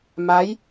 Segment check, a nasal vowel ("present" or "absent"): absent